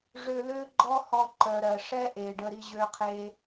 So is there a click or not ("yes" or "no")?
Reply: yes